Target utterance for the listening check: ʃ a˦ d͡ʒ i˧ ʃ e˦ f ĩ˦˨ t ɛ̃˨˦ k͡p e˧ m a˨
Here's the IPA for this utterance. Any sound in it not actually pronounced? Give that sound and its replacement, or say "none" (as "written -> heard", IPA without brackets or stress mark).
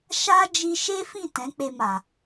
none